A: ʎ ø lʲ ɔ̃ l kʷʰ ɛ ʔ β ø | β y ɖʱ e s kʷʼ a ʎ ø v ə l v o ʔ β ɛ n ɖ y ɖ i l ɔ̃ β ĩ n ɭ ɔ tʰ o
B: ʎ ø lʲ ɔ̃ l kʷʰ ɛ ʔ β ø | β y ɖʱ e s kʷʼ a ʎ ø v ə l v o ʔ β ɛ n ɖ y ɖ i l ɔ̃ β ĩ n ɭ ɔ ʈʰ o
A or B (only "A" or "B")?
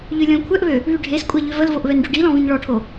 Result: B